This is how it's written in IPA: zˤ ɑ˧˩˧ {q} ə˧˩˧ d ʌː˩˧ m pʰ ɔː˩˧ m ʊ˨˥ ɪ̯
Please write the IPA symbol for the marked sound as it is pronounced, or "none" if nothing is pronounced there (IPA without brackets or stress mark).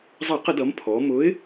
q